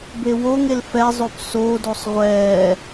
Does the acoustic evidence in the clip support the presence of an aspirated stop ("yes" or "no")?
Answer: no